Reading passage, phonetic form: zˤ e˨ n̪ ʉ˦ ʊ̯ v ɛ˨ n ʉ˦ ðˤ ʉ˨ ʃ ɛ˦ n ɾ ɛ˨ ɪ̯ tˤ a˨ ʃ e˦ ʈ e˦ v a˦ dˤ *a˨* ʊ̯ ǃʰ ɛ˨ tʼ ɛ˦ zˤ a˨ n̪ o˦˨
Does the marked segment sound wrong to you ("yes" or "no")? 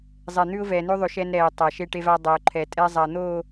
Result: no